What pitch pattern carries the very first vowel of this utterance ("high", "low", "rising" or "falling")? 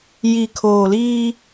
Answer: low